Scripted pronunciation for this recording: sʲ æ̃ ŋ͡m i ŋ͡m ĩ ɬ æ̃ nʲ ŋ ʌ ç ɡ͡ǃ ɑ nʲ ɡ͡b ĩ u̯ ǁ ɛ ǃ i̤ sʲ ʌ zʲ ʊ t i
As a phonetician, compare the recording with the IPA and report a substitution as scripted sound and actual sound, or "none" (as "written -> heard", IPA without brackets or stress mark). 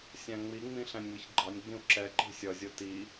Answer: none